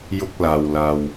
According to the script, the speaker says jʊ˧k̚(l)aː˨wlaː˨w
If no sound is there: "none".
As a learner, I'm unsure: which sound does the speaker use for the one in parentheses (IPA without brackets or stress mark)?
l